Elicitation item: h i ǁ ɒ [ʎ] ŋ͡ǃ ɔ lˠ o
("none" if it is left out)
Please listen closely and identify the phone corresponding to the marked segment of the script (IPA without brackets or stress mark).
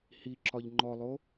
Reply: ʎ